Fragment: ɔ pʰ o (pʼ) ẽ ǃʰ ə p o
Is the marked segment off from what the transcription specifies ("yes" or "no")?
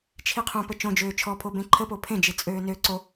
yes